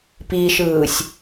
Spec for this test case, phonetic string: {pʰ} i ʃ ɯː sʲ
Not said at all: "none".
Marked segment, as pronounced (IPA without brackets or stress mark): p